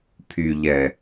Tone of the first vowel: low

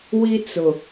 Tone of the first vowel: high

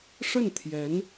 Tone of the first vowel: falling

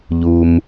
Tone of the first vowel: low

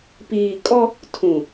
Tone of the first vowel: low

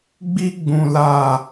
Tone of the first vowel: high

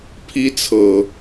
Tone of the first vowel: high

